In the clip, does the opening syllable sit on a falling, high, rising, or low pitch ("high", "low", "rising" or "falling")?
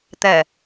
low